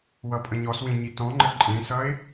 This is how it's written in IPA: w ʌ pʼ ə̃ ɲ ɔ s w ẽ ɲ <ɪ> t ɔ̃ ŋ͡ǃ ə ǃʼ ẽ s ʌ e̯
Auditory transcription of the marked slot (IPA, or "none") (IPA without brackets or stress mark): i